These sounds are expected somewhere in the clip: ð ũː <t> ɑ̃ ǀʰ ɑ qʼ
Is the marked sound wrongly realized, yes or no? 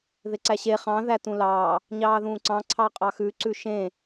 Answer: yes